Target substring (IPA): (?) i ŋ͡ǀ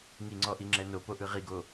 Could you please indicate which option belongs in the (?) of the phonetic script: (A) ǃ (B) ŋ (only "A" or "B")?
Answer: B